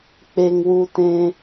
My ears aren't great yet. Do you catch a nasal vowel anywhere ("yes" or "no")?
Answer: yes